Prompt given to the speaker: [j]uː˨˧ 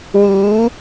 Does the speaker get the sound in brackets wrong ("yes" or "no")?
yes